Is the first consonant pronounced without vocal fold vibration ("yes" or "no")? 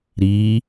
no